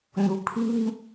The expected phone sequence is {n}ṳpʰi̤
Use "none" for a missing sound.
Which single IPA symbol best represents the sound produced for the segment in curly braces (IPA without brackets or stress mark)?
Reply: n